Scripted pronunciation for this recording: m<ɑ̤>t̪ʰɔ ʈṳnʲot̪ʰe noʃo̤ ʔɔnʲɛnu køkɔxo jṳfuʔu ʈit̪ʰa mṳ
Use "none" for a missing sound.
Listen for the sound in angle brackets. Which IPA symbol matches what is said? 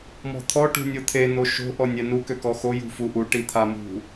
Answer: ɔ̤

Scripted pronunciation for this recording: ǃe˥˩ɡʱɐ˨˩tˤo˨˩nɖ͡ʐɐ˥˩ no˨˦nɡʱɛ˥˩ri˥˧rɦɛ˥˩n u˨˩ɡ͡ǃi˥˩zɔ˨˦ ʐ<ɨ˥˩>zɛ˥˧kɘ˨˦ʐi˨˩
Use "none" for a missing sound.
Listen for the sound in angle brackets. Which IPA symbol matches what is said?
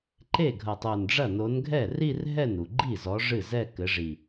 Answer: ɨ˥˩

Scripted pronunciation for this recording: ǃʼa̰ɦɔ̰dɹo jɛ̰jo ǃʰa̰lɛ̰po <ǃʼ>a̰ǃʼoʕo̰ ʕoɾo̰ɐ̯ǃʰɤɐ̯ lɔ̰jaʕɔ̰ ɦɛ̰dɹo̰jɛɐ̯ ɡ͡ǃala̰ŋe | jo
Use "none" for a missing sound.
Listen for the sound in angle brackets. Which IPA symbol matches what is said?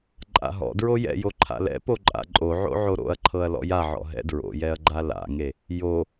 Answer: ǃʼ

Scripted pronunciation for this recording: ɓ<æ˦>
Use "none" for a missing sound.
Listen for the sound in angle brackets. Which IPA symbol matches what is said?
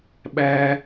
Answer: æ˦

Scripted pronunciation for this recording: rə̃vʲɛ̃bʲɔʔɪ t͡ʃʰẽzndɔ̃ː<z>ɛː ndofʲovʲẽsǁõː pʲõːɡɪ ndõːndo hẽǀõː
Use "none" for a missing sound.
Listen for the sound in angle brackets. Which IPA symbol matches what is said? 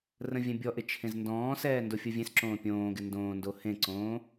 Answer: s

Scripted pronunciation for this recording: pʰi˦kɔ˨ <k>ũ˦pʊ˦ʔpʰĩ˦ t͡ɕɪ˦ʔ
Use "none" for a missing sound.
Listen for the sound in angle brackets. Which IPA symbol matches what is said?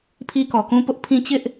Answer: k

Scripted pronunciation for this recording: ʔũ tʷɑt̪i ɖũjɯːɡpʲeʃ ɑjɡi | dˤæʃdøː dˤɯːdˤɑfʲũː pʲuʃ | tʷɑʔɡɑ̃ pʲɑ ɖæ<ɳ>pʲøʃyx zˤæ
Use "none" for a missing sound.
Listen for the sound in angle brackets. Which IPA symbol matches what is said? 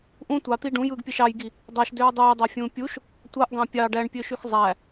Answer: ɳ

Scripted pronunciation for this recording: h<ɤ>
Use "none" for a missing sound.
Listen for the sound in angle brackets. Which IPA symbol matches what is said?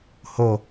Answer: o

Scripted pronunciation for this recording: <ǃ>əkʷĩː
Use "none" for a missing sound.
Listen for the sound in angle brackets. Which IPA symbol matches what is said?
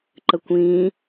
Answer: ǃ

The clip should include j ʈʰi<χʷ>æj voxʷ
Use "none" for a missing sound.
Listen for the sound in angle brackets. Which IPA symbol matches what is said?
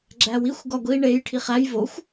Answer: χ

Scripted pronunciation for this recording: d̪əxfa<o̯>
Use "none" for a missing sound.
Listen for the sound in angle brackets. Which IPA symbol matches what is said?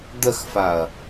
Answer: ɐ̯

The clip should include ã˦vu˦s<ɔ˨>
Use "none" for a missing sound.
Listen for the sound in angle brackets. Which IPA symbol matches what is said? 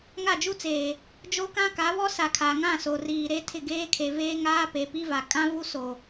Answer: o˨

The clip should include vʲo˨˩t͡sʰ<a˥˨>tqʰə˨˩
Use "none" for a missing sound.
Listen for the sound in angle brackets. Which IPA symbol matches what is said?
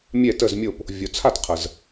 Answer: a˥˨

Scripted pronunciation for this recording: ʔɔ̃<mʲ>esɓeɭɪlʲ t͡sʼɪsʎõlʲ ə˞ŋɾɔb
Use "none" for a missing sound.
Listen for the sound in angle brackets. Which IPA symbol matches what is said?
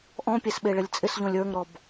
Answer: pʲ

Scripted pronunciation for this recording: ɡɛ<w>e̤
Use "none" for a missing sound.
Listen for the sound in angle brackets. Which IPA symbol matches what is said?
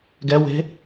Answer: w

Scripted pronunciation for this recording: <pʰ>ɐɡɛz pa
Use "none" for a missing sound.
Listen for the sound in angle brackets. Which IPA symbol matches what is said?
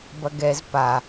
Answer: b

